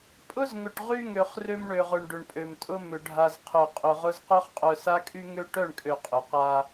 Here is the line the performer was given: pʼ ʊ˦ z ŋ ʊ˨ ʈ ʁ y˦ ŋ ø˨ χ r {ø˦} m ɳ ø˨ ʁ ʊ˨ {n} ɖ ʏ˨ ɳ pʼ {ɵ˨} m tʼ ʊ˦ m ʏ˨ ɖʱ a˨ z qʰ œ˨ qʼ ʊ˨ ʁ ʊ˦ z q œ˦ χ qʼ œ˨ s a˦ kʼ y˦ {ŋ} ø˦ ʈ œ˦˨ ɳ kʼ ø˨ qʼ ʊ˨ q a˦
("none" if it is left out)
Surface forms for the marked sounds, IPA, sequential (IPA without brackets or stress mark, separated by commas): ø˦, ɳ, ø˨, ŋ